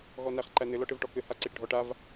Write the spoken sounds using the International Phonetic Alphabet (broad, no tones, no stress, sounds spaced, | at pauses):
ɣ ɔ n æ χ ǃ æ n ɘ l ɔ ʈ ɘ v ʈ ɔ k ɘ h a ǀ i ʈ ɖʱ ɔ ʈ a v